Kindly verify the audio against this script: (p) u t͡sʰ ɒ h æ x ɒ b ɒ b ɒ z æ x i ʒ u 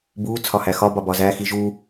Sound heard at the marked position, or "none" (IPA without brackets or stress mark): b